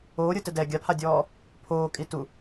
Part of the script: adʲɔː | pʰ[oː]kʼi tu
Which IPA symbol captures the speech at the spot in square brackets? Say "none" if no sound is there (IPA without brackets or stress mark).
oː